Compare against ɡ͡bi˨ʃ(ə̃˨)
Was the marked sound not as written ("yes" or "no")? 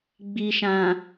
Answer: yes